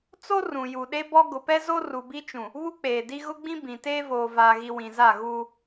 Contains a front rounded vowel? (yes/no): no